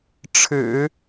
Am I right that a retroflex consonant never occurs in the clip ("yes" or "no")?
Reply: no